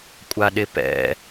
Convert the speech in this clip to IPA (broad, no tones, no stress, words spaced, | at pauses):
kʷʼaɗɪpɛ̰